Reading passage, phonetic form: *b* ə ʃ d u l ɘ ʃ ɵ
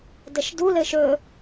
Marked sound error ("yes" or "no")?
yes